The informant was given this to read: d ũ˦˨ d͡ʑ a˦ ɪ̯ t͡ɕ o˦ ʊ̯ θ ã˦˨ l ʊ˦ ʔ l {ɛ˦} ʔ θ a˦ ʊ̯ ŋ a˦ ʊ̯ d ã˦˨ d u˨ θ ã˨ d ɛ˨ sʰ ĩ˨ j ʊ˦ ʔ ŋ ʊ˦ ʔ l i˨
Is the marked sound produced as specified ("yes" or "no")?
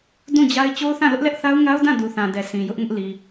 yes